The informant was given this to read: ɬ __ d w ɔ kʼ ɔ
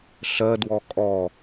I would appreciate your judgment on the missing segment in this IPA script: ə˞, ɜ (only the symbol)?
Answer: ɜ